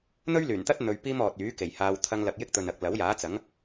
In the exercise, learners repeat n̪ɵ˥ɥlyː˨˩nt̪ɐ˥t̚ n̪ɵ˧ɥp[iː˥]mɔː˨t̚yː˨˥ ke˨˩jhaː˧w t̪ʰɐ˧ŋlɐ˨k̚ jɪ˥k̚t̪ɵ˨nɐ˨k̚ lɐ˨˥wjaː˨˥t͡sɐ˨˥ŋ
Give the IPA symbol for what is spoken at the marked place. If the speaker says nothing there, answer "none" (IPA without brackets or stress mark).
iː˥